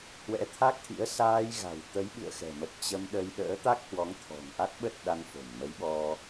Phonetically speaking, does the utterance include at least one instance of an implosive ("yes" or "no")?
yes